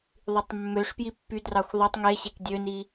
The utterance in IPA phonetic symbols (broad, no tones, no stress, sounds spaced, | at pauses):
ðˤ y tˤ mː ø ʂ p j i pː y d r ɑ xʷ ðˤ ɯ tˤ ŋ e ɕ e k dʲ ø n i